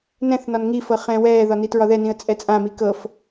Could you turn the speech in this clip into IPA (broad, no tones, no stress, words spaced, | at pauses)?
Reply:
nɛ̃θnɒn ŋifɤ χɛ̃ːwɛːðɒ nitɹɒðɛnĩə̯ t͡sʼɛt͡sʼãmi kɤf